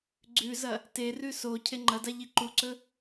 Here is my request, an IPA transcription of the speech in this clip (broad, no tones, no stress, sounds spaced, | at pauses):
ɡ͡ǀ ʉ z ɐ | t e r ʉ s o cʰ e ŋ͡ǃ ɐ d a ʎ i ǃ u ǀ ɵ